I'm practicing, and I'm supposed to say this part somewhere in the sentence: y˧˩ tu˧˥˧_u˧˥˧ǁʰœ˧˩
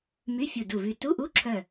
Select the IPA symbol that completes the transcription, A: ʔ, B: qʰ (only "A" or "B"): A